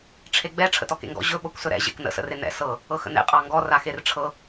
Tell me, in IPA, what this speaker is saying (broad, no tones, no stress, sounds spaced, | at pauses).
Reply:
ʈ͡ʂʰ e ɡ͡b ɛ ʈ͡ʂʰ ə̰ t ɔ k ḛ ŋ ɡ ɔ̰ ʑ ɵ ɓ ɤ kʷ s ɵ ɾ ɛ̰ ʑ ḛ k n ə̰ s ə̰ r e n ɛ̰ s ɤ | ɤ x ə̰ n ḛ qʼ ɑ ŋ ɡ ɔ r a x e r ʈ͡ʂʰ ɤ